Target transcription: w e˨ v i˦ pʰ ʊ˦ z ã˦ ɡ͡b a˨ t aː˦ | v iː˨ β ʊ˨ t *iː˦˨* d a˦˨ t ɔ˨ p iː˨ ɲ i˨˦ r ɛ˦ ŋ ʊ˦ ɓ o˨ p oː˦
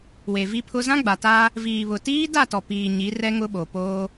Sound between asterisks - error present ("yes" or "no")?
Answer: yes